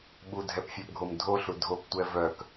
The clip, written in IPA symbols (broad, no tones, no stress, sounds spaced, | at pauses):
ɓ u dʱ ɛ p fʲ œ p ɡʱ o m dʱ o ɬ u dʱ o p tʷ ɛ v œ k